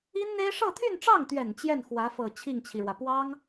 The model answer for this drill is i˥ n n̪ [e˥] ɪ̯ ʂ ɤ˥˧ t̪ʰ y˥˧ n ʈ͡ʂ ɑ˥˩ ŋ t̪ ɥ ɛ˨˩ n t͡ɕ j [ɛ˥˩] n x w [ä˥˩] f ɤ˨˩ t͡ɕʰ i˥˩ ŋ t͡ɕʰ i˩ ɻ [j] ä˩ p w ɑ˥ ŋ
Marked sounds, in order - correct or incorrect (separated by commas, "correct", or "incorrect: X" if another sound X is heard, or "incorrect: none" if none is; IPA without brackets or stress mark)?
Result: correct, correct, incorrect: ä˧˥, incorrect: w